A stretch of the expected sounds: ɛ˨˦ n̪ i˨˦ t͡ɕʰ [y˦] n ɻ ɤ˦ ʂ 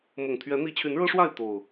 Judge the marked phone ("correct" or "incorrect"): incorrect